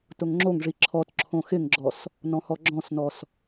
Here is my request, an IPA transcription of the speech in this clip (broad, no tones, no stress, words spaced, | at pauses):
tʊŋŋ͡ǁoŋʐi ǁʰɔt ǁʰõxɪŋɡ͡ǁɔs | nɔ̃hɔɡ͡ǁɔ̃snɔs